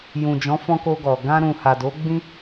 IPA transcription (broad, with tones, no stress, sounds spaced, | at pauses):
j ũ˨ d͡ʒ ɔ̃˨˦ f ɔ̃˧ k o˧ ɡ ɔ˨ ɡ ã˧ ɾ ũ˨ h a˨ d o˨˦ ɡ͡b ĩ˦